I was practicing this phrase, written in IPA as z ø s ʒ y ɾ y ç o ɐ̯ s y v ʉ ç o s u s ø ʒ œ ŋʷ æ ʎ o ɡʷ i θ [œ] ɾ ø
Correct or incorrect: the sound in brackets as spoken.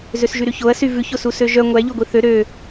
incorrect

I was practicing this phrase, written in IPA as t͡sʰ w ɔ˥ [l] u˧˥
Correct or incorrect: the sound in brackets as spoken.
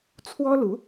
correct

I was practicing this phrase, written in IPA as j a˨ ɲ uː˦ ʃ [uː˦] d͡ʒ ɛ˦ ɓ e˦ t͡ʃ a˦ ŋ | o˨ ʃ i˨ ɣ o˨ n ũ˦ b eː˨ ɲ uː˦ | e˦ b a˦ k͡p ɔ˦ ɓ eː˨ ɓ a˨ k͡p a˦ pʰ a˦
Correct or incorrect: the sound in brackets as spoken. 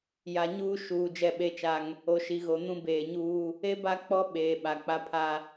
incorrect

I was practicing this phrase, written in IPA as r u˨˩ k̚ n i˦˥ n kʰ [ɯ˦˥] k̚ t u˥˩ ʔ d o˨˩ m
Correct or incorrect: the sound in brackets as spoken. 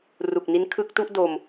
correct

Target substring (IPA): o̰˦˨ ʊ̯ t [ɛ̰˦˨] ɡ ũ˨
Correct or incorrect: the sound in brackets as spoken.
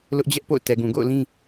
incorrect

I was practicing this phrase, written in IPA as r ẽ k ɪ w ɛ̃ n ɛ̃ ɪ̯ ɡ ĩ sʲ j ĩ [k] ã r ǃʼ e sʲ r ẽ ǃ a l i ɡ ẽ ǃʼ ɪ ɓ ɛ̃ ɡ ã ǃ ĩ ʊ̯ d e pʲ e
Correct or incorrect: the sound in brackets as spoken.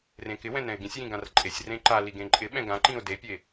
incorrect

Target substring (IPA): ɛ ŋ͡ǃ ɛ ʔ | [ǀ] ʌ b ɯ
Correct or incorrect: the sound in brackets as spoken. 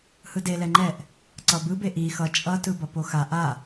correct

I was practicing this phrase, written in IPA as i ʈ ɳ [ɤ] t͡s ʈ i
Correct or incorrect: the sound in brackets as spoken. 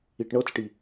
correct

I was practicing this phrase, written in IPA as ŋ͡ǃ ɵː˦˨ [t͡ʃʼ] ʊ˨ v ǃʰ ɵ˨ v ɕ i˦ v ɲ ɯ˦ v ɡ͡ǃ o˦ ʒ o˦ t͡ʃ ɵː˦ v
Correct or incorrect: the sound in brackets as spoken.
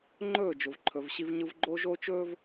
incorrect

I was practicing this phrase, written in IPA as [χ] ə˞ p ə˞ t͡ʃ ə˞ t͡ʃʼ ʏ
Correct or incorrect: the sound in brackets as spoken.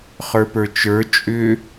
correct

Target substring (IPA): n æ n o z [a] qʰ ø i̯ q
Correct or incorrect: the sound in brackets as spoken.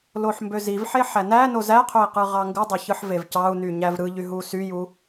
incorrect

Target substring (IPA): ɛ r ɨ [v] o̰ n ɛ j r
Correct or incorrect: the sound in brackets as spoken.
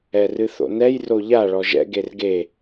incorrect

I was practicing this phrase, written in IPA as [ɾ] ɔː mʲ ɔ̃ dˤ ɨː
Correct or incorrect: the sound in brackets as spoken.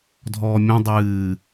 incorrect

